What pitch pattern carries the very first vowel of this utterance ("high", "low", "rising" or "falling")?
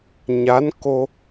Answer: rising